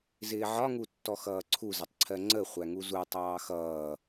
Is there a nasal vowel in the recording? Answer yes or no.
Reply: no